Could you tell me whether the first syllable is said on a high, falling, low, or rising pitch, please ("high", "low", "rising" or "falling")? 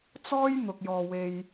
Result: high